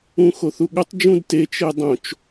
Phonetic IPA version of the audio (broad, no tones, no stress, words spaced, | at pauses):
ũxoθuɠotˤ d͡ʒũdte t͡ʃedˤõt͡ʃ